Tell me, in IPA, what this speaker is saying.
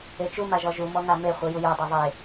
e t͡ʃ u m a ʒ ɔ ʒ u m ɔ ŋ a m e χʷ ɯ j u j ɔ dˤ i ðˤ e

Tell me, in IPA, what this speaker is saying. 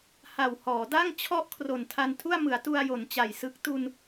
h a˨˩ w h ɔː˩˦ d a˥˩ ŋ t͡ɕʰ ɔ˥˩ ʔ kʰ r o˨˩ n tʰ a˧ n tʰ u˥˩ a̯ m ɯ˩˦ a̯ t u˧ a̯ j o˩˦ n t͡ɕ a˨˩ j s ɯ˦˥ k̚ t u˧ n

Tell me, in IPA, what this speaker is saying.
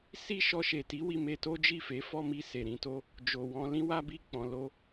s i˦ ʃ ɔ˧ ʃ e˨ t i˨˦ w i˧ m e˧ t o˦ d͡ʒ i˦˨ f e˨˦ f ɔ˦ m i˧ s e˨ ɾ ĩ˧ t o˦ | d͡ʒ o˨ w ɔ̃˧ l ĩ˦ w a˦ b i˦˨ k͡p ɔ̃˨ l o˧

